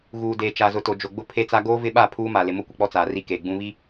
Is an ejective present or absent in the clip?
absent